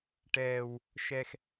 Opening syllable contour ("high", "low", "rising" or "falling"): low